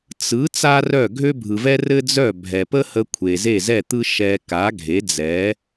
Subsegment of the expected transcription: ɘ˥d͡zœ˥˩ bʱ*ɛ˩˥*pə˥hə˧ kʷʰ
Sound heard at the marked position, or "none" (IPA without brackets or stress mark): ɛ˩